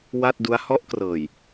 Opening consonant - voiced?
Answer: yes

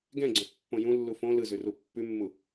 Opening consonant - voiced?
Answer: yes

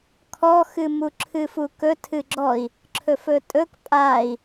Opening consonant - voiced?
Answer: no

